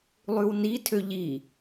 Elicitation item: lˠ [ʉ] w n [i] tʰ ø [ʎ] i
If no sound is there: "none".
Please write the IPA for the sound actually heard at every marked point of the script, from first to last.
ʉ, i, ʎ

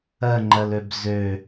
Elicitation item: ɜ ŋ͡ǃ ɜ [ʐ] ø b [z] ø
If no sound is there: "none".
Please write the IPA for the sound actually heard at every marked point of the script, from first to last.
l, z

